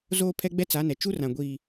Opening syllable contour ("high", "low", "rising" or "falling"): high